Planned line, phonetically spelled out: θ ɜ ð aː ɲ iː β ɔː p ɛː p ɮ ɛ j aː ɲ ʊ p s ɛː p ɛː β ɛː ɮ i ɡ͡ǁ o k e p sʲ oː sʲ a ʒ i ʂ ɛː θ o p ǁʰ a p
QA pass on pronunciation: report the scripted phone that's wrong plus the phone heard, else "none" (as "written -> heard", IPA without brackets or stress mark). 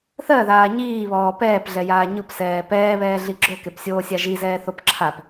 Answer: ʂ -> z